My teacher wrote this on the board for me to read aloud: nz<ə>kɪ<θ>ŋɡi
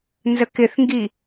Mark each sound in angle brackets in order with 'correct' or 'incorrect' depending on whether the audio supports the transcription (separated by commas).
correct, correct